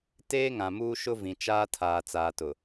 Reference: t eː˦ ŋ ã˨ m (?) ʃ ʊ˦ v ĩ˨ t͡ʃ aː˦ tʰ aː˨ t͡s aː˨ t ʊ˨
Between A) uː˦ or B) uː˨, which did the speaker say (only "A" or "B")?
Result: A